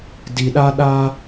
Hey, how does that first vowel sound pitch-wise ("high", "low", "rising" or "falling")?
low